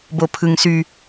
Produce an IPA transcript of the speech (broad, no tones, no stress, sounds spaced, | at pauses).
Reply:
b o pʰ ɯ ŋ s y